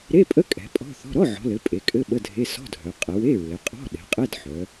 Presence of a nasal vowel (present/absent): absent